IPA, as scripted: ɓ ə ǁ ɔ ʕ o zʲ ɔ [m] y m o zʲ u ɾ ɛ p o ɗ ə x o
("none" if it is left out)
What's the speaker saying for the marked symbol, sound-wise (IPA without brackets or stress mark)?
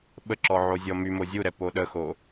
m